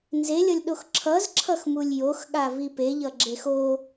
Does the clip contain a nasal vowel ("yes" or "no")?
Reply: no